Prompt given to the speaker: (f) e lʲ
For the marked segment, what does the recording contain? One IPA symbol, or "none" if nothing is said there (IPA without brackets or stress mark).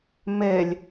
m